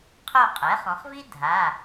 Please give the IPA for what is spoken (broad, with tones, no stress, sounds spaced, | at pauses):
qʰ o˦˨ qʼ ɛ˩˥ χ ɔ̃˩˧ χ v i˥ dʱ a˩˧˩